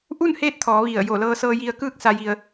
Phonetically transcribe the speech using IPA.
ʔu˥˨nheː˧˥t̚t̪ʰɔː˩˧ ʋi˧˩ə̯jo˧˩ lɤː˧sɤː˧ji˧ə̯kɯː˥˨k̚ sa˧ji˧ə̯

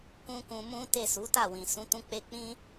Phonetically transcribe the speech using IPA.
kũ˦kũ˧mũ˦te˦˨ su˨˦ta˦˨wĩ˨ sũ˨˦tũ˧k͡pe˧k͡pĩ˦

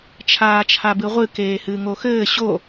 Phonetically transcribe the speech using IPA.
t͡ʃʰaːt͡ʃʰabɨʁʷɨ keːhɨːŋoxɘː ɕo

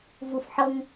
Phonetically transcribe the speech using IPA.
vufħɤŋ

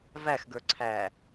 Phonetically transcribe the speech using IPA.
væxɡə˞ ǀʰæ

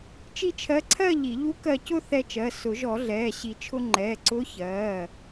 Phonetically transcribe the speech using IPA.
t͡ʃi˥˧t͡ʃʰɜ˧˥ǀʰɜ˥˧ ʎi˨˩˦ ʎu˧˥ kɜ˧cʊ˥˧ θɛ˧t͡ʃɜ˩˧˩ sʊ˨˩˦ʒɔ˨˩˦ɮɛː˩˧˩ ɕi˨˩˦t͡ʃʰʊ˧ ŋ͡ǃɛː˩˧˩ǀʊː˧˥ çɜː˩˧˩

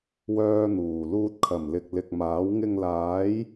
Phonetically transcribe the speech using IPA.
wœː˥n̪uː˨˩ luː˧t̚kʰɐ˨˩mlɪ˨k̚ lɪ˨k̚maː˨˥w ŋɪ˧ŋlaː˨˥j

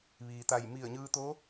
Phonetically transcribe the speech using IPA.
ʋiː˩t̪a˧˩j mi˧˩ə̯ɲɯː˧t̪o˧˥

